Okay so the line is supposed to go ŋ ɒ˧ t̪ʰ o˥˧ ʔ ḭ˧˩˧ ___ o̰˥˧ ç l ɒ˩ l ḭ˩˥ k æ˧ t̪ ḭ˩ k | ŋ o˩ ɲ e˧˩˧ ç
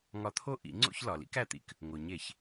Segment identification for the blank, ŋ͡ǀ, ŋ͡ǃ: ŋ͡ǀ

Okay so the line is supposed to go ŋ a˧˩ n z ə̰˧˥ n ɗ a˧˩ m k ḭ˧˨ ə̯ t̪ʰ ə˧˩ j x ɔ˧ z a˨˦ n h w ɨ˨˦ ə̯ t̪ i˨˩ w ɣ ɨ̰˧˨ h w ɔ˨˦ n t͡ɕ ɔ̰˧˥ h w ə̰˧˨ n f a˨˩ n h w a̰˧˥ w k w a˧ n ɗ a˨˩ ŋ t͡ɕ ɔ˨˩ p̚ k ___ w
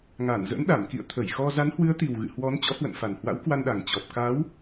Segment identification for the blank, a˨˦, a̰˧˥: a˨˦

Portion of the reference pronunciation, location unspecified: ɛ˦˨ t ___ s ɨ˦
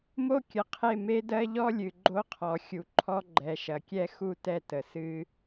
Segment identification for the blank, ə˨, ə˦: ə˨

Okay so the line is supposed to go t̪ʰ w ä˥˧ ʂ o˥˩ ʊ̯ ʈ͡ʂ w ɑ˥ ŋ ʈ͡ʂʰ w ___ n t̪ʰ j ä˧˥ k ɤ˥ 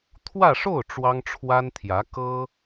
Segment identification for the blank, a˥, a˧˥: a˥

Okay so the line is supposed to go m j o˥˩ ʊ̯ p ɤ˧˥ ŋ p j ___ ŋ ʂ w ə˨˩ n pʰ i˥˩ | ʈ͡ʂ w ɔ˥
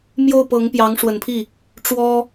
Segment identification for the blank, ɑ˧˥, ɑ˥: ɑ˧˥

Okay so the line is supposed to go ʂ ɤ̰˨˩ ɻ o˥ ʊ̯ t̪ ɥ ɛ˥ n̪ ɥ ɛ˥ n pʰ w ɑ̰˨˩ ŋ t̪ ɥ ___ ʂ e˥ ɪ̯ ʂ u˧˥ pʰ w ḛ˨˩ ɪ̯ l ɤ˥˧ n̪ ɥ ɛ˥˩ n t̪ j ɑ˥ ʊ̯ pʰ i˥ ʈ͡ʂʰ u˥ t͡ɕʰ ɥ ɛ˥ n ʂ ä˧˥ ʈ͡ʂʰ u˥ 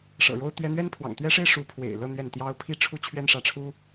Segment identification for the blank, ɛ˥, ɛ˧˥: ɛ˥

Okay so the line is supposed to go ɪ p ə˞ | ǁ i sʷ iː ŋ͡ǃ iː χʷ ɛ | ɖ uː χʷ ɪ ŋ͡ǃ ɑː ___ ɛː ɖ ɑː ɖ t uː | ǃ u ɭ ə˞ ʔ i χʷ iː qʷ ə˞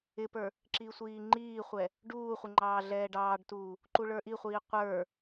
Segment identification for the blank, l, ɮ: ɮ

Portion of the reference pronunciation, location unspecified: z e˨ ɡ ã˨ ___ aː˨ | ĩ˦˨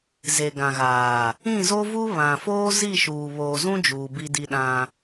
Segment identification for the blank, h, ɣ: ɣ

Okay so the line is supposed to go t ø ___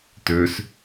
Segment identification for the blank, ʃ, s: s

